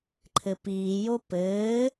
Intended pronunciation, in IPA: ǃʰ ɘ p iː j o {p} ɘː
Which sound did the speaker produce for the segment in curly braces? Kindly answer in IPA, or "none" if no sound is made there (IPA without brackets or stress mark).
p